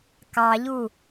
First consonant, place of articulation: velar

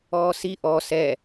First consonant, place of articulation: alveolar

